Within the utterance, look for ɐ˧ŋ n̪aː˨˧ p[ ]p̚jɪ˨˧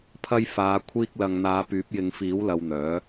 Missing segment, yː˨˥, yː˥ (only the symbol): yː˨˥